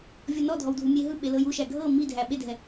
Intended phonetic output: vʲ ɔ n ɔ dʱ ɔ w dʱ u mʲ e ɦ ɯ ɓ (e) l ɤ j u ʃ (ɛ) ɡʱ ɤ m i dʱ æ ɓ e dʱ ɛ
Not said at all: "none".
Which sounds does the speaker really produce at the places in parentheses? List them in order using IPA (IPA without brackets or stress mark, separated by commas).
e, æ